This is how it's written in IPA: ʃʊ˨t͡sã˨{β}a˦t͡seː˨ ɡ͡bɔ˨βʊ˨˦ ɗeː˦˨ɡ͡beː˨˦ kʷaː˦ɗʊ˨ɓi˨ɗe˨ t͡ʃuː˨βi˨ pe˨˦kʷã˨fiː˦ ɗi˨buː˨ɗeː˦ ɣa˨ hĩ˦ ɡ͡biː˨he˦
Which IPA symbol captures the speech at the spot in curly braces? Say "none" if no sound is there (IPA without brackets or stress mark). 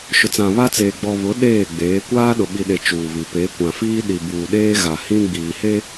β